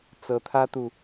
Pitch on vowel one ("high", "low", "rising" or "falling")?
rising